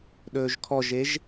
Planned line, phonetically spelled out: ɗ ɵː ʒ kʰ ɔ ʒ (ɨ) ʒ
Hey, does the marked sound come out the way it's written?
no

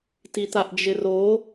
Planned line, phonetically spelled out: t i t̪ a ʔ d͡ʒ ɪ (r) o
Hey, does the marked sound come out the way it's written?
yes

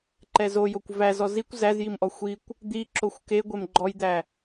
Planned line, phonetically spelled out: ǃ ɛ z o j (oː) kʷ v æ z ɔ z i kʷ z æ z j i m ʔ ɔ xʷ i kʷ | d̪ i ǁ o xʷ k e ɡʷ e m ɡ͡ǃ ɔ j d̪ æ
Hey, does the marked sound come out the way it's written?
no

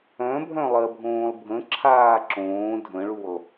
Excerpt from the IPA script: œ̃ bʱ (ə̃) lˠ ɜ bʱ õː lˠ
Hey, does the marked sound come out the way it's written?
no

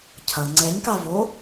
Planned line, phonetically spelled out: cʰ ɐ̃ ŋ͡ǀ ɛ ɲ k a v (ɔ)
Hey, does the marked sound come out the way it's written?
no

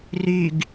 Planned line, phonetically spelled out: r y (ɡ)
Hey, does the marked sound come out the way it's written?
yes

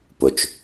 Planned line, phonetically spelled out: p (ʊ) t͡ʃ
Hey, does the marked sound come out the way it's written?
yes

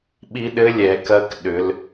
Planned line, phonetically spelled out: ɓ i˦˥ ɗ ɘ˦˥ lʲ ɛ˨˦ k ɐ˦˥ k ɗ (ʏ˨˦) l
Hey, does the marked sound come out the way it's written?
yes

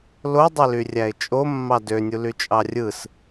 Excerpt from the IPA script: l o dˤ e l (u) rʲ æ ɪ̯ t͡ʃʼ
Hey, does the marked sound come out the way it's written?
no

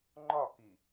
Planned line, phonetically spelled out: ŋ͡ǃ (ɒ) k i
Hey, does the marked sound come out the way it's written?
yes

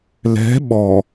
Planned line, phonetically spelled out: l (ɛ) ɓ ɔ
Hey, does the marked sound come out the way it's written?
no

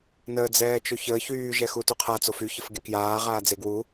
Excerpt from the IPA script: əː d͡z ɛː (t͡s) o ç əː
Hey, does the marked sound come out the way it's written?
no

